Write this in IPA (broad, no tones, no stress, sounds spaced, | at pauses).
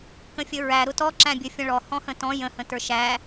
k ə̃ fʲ ə ɹ æ ɾ ʊ t ɔ ǁ æ̃ bʲ ə fʲ ə̃ ɭ ɔ h ɔ̃ h ə̃ t ɔ̃ j ə̃ h ə̃ t ə˞ ʃ æ